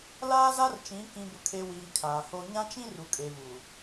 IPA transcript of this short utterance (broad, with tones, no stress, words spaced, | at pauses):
laː˦za˦rt͡ʃĩ˨˦ kĩ˨bʊ˨kʰe˨ wiː˨ kʰaː˨ho˦ ɲã˦t͡ʃĩ˦ ru˨kʼe˨vu˨